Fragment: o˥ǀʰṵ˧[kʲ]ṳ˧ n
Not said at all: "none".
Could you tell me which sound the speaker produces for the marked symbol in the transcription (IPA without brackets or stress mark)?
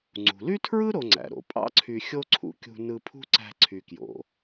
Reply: kʲ